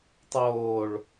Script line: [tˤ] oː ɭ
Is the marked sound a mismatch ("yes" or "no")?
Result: no